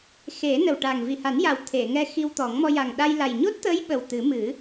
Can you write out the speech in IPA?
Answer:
xe˨˩˦nə˨˩wʈa˨˩ŋ vi˨˩ha˨˩˦nja˨˩w t̪ʰe˨˩˨ŋɛ˧ xi˧wt̪ɔ˨˩˦ŋ mɔ˧ja˨˩ŋ ɗa˧jla˨˩j ɲo˦˥t̚t̪əː˧˥j ɓə˨˩w t̪ɨ˨˩˦mɨ˨˩˦

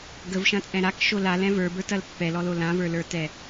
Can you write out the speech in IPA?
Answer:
ɡəvʃɐ̃t͡sʼɛ̃ ɾakʃo lalɛ̃ və˞bə˞tɐl pːɛlɔlo lãvə˞lə˞tɛ

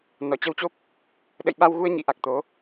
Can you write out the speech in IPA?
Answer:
nɔ˧˩t͡ɕə˧wt͡ɕo˦˥p̚ | ɗə̰˧˨jɓa˧wɣu˧ə̯ ɲḭ˧˥ʔa˨˩k̚ t̪o˨˦

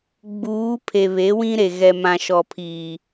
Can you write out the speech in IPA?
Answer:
ɡ͡buː˨˦ pʰe˨βe˨˦wĩ˦ɾe˨ ɣɛ˨mã˨ʃɔ˨pʰiː˨

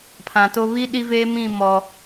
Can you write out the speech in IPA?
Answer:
pʰã˨to˦ βi˦ ɗi˦veː˦ mĩ˦˨mɔ˨

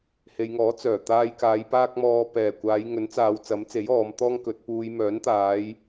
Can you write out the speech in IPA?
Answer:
he˨jŋɔː˨˥ t͡sœː˨˩ t̪aː˧jkaː˨˧j paː˥k̚mɔː˧ pɛː˨˩kʷaː˨˧j ŋɵ˨˥nt͡saː˨˧w t͡sɐ˨˥mt͡se˨˥j ɔː˨˧mt̪ɔː˥ŋkɵ˨˥t̚ puː˨j mœː˨˥nt̪aː˨˧j

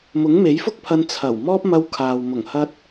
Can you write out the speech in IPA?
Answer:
mʊ˨˥ŋme˨˥jfʊ˥k̚pʰɐ˧n t͡sʰɐ˨˩w mɔː˥p̚mɐ˧wkʰaː˨w mʊ˨˩ŋhɐ˧t̚

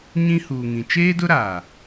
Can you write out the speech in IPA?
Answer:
ɲĩ˦huː˨ŋĩ˨ t͡ʃeː˦dʊ˦ɾaː˨

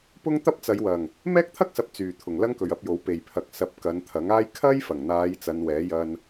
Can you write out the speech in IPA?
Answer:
pʊ˥ŋt̪ɐ˥p̚ t͡sɐ˨˧jwɐ˨˩ŋ | mɛː˥k̚t̪ʰɐ˥k̚sɐ˨p̚ t͡syː˨˩t̪ʰʊ˨˩ŋ lɐ˥ŋkɵ˨ɥɐ˧p̚jo˨˥w pe˨˩jpʰɐ˨k̚ sɐ˧p̚ kɐ˨˧nt̪ʰɐ˨˥ŋaː˥j kʰɐ˥jfɐ˨˩ŋn̪aː˨˧j t͡sɐ˨˧nwɛː˨˥jɐ˧n

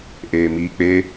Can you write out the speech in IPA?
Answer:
ʔeːmiːk͡pe

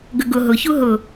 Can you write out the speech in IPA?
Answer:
ɡəɡʊ ɦʊçu ɦʊ

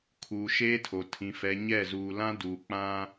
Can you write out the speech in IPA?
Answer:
kʰuː˨ʃeː˦tʰo˨ tʰĩ˨fɛ˨ ɲɛ˦˨zuː˨lã˦ duː˨k͡pã˦

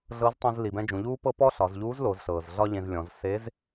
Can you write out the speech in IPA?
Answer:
ɮɤ˧˥ztˤũ˧z li˩bɛ̃˧ d͡ʒũ˩˧ʎuː˥pɤ˥ pɔ˥ ɬɒ˩˧zʎuː˧˥zlo˩˧zɬɤː˩z ɮɒ˥ʎẽ˧zlʲɔ̃˩˧z se˧˥z

